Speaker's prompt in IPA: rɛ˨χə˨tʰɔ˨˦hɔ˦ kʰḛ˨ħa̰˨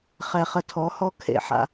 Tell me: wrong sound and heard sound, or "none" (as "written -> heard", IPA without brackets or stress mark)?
r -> χ